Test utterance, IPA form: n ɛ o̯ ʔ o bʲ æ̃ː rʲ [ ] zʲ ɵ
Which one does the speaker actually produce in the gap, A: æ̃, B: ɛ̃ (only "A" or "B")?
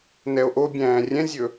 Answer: B